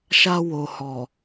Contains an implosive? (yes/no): no